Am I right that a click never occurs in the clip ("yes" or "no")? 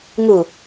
yes